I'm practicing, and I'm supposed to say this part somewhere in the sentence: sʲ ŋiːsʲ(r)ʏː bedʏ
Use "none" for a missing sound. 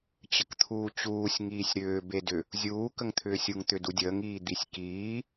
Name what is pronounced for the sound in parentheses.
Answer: ɾ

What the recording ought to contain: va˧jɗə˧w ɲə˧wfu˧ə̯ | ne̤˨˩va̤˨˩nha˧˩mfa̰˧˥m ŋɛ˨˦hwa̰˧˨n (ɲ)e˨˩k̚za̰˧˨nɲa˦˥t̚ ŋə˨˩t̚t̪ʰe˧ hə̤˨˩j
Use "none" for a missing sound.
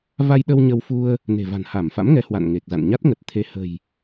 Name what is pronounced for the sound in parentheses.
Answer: ŋ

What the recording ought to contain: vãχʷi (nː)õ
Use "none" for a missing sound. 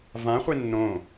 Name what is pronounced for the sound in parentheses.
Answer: nː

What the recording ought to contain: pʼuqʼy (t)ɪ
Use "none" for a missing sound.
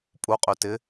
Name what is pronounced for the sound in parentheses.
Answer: t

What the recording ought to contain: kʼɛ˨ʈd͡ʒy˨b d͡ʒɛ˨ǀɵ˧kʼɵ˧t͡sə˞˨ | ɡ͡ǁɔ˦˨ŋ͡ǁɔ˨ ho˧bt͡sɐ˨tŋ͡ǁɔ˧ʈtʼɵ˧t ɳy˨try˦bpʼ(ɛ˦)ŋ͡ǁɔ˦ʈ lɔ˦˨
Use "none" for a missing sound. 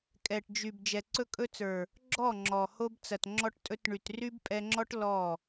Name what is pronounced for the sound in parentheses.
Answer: ɛ˧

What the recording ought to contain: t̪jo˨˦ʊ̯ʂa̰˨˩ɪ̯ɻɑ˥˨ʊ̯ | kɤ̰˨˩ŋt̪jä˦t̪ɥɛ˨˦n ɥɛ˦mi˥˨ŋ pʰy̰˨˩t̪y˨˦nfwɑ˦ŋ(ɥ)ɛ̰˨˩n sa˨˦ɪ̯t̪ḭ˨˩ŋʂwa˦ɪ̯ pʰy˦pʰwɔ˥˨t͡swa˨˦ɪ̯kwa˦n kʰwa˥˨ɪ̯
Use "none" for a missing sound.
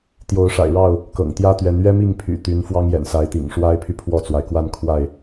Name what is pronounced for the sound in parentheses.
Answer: j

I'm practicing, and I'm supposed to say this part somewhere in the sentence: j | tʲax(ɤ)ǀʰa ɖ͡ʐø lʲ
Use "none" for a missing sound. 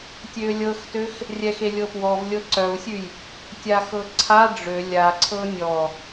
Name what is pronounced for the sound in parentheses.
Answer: ɤ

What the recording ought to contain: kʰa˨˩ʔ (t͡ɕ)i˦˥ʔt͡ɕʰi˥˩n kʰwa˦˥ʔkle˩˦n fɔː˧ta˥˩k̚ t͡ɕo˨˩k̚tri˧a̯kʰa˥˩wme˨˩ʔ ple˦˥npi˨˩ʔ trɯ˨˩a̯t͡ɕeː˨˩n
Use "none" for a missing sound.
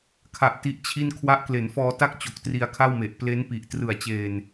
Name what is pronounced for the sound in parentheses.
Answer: t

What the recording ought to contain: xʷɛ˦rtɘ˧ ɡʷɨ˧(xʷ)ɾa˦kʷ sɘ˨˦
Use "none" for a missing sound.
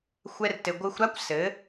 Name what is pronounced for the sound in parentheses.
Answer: xʷ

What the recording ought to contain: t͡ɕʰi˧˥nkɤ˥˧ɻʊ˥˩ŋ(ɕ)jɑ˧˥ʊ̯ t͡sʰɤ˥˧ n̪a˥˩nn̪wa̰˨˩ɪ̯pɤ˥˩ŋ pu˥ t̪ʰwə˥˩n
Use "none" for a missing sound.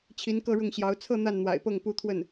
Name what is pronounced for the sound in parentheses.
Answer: ɕ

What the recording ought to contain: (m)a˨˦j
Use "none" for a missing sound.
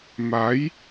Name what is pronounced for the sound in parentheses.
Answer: m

